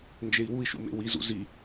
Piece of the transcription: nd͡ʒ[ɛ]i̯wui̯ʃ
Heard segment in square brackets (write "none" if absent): e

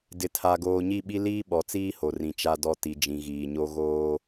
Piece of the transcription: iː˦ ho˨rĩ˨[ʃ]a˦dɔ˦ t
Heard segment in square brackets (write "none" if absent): t͡ʃ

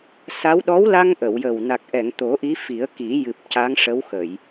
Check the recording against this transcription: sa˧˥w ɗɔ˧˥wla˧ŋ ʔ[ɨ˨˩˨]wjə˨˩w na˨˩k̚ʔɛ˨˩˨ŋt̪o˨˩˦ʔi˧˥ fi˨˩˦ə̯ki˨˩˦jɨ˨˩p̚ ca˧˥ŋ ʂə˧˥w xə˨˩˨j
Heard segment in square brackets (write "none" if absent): ə˨˩˨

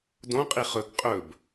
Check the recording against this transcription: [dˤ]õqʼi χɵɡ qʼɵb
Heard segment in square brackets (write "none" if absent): d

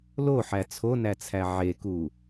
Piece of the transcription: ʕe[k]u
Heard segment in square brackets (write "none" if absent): k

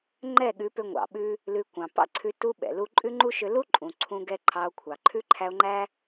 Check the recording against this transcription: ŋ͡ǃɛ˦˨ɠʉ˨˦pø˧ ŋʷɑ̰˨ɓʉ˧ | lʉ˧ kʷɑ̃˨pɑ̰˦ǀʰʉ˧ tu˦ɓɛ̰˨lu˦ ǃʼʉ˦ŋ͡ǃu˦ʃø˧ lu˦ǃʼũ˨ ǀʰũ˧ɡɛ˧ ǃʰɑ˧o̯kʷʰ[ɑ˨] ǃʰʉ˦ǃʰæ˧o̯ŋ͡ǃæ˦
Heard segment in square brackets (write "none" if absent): ɑ˨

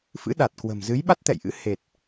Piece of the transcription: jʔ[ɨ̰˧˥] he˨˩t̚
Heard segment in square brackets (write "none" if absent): ɨ̰˧˥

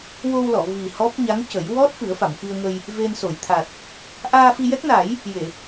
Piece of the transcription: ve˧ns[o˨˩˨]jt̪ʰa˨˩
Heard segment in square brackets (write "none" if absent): o˨˩˨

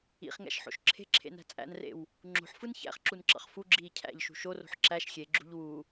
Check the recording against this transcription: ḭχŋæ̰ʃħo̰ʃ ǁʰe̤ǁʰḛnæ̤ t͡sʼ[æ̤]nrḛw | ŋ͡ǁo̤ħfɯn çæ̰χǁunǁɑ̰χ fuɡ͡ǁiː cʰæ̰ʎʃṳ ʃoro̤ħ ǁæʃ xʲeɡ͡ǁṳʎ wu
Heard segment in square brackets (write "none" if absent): æ̰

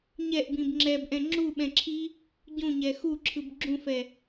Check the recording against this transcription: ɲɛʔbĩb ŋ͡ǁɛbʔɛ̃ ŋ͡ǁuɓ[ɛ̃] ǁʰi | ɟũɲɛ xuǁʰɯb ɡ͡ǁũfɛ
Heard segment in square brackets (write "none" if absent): ɛ̃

